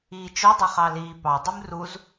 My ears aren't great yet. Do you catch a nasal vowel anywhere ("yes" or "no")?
no